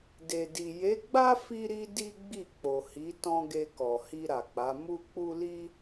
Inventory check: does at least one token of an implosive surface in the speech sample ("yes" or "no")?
no